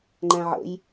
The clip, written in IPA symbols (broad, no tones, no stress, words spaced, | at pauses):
ŋ͡ǃæ̃ʕə̰j